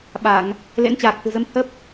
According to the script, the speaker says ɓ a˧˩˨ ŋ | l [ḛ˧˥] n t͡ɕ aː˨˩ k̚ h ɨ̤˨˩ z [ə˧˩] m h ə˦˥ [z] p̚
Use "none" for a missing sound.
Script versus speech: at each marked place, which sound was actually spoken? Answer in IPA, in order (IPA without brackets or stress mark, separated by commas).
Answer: ḛ˧˥, ə˨˦, none